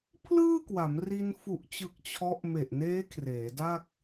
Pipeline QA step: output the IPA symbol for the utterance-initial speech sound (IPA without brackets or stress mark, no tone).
pʰ